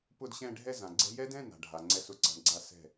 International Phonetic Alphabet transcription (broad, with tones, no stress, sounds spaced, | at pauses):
p ʊ˥˧ d ɕ ɛ̃˥˧ ɖʱ ɛ˥˧ z ã˩ ɡ͡ǀ ɛ̤˦˥ j ɛ˦˥ d ɛ̃˧˥˧ n a̤˩ ɖʱ a˩ ŋ͡ǀ ɛ˧˥˧ s ʊ˩ ǀ a̤˨˦ ɳ ɡ͡ǀ a˦˥ s ɛ̤˥˩